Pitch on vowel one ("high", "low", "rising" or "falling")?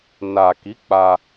low